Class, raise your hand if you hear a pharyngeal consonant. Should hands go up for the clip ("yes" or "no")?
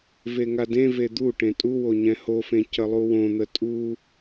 no